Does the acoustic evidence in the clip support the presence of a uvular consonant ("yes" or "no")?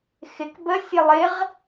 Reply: yes